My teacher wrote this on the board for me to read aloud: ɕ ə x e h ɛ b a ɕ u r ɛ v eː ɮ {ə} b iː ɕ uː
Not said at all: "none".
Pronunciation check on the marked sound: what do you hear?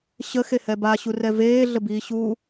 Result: ə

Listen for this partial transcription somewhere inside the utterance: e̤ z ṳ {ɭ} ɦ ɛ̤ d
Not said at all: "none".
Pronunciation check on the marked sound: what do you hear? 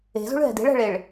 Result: ɭ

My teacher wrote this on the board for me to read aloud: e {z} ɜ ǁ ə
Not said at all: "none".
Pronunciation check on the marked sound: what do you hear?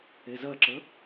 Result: z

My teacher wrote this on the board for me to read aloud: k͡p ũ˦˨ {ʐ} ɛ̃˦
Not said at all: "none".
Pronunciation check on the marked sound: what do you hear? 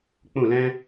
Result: l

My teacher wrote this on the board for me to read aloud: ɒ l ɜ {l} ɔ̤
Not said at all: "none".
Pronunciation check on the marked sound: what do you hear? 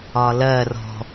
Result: r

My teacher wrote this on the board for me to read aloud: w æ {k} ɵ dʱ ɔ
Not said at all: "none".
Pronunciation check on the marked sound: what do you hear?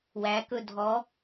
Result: k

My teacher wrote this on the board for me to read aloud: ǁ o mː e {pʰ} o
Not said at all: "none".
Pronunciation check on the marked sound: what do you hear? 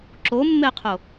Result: qʰ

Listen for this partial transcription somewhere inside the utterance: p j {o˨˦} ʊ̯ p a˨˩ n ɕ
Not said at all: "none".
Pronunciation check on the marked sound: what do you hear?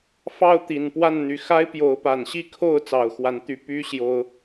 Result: o˨˦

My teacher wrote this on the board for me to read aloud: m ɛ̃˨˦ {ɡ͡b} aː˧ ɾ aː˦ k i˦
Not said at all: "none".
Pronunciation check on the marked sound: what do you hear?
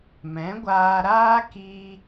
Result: ɡʷ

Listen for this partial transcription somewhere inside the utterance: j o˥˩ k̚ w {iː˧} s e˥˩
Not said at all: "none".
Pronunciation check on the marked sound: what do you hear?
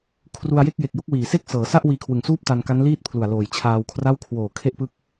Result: iː˨˩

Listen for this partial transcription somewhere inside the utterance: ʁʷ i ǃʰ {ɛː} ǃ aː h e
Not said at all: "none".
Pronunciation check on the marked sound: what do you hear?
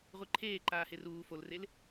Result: eː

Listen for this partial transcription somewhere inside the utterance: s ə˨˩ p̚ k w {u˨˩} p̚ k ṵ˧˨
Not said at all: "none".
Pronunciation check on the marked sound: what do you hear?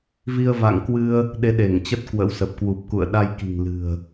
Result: u˨˩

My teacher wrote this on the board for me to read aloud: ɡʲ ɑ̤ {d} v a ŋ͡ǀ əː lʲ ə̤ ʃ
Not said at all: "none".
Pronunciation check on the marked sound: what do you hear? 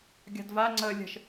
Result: d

